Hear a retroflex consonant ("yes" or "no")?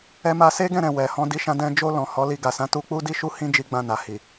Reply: no